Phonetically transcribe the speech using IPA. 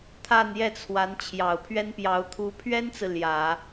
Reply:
t̪ʰa˥˧njɛ˥˩t͡sʰwa˧˥n t͡ɕʰjɑ˨˩ʊ̯pʰɥɛ˥npjɑ˧˥ʊ̯ t̪ʰu˧˥ pʰɥɛ˥nt͡sɹ̩˨ ljä˨˩˦

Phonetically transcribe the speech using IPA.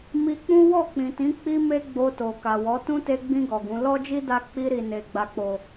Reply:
mi˧k͡pũ˦ wɔ˦˨k͡pĩ˨tĩ˨˦ k͡pi˦me˦ ɡ͡bo˧to˨ka˨wɔ˨˦ tũ˦te˧ɡ͡bĩ˧ ɡɔ˨ɡũ˨˦ lɔ˦d͡ʒi˦ da˦ k͡pi˧ɾi˨ ne˨ ɡ͡ba˨k͡po˨

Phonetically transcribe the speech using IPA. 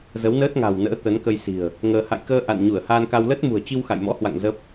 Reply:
zə˨˦wnəː˦˥t̚ ŋa̤˨˩wnə̰ː˧˥ t̪ə˨˦nkə˧jsi̤˨˩ə̯ | ŋəː˧ ha̰˧˨jkəː˧ ʔa̰˧˨n ɲu˧˩ə̯haː˧nka˧w ləː˦˥t̚mṳ˨˩ə̯t͡ɕi˧w xa̰˧˨jmɔ̰˧˥hwa̰˧˨ŋ zə˦˥p̚

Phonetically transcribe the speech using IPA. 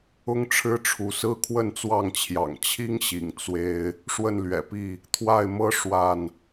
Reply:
ʊ˦ŋʈ͡ʂʰɻ̩˦ʈ͡ʂʰu˨˦sɹ̩˦ kʰwə˥˨nt͡swɑ˥˨ŋt͡ɕʰjɑ̰˨˩ŋ t͡ɕʰi˦ŋɕḭ˨˩ŋ t͡swe˦ɪ̯ | ʂwə˥˨nlɥɛ̰˨˩pi˥˨ | t̪ʰwa˥˨ɪ̯mɤ˦ ʂwa˥˨n

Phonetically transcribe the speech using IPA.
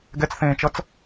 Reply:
ɡɛt͡sθẽːt͡ʃʌt͡s

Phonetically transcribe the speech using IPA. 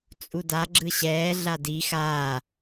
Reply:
t͡sʼuda ɡ͡ǁɯɕɛː ɮadi xaː

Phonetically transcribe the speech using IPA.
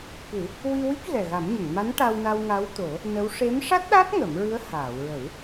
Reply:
kɨ˨˩˦ | wi˧wi˦˥k̚ ɣɛ˨˩ɣa˨˩˦mɲə˨˩˨ŋma˧˥n ʈa˧wna˧w ŋa˧˥wt̪o˨˩˦ | nə˧˥w ʂe˧˥m ʂa˦˥t̚ɗa˦˥t̚ ŋə˨˩˦mɹɨ˧˥ə̯ haː˨˩˨wɹə˨˩˦w

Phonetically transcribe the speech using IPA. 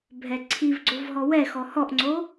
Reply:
bʱɛǀʰivɡ͡ǀov ɦɔwɛxɔ hɔʔŋ͡ǀo

